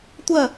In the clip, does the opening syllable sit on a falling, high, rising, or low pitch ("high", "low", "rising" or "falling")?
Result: falling